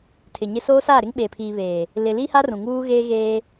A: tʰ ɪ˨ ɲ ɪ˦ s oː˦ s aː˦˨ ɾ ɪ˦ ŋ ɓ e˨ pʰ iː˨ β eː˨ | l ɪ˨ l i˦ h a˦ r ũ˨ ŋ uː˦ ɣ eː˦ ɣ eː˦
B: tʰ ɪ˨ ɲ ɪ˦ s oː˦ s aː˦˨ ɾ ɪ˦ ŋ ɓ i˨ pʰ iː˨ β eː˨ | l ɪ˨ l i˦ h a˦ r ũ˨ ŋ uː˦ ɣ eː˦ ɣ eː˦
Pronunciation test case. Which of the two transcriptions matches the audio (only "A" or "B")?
A